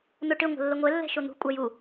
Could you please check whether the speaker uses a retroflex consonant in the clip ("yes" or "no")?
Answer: yes